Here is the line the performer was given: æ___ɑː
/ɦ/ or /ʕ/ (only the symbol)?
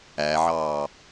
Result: ʕ